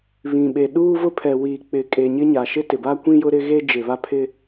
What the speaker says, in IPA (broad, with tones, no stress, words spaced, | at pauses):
βĩ˨ɓe˨ ɗuː˦vʊ˦ pʰɛ˨wiː˨ k͡pɪ˨ kʼe˨ɲɪ˦ ɲa˨ʃɪ˦tɪ˨ba˦ kʷĩ˦jʊ˦ɾɪ˦ɣe˦ d͡ʒɪ˨ βa˦pʰɪ˦